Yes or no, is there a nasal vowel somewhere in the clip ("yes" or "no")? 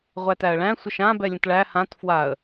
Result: yes